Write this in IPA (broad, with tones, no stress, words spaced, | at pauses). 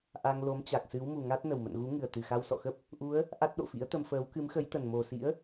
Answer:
ʔa˧ŋ lo˨˦mt͡ɕa˨˩k̚sɨ˨˦w mu˨˩ŋa˦˥t̚ nə˨˩wmə̰˧˨nɣu˨˦ ŋɨ˨˩ə̯t̪ɨ˨˩xa˧w sɔ̰˧˨xə˦˥p̚ | ʔu˨˦ə̯ | ʔa˦˥t̚ɗo̰˧˨fḭ˧˥ə̯t̪ə˧m fəː˨˦w kɨ˨˦mxə˨˦jt̪ə˨˩nmo˨˩ sḭ˧˥ə̯